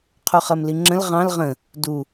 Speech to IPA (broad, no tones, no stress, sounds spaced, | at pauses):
qʰ u χ ɜ m l i ŋ͡ǁ ə̃ l ʁ ɑ̃ l ʁ ə̃ | d u